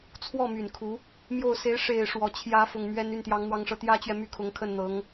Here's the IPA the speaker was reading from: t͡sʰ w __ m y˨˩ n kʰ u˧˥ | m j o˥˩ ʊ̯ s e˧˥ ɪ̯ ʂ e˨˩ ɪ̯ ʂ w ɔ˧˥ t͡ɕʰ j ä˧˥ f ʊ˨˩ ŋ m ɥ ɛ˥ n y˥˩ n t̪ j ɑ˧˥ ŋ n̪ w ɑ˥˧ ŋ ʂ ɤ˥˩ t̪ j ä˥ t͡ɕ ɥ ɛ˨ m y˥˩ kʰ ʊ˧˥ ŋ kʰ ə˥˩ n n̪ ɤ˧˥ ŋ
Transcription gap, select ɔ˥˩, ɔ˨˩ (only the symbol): ɔ˥˩